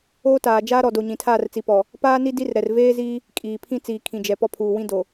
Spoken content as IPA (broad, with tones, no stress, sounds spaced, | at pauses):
oː˦ t aː˨ d͡ʒ aː˦ ɾ ɔ˨ d o˨ ɲ ĩ˨ tʰ aː˦˨ r t͡s i˨ p ɔ˨ | p aː˦ n i˦ d i˦ r ɾ ɛ˨ r v eː˦ z iː˦ | kʼ iː˨ pʰ ĩ˦ t͡s iː˨ kʰ ĩ˨ d͡ʒ ɛ˨ p ɔ˦ pʰ uː˨ w ĩ˦ d o˨